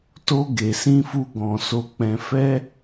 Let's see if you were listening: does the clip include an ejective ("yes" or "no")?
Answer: no